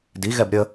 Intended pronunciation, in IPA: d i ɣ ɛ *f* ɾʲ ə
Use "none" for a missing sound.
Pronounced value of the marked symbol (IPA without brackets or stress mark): b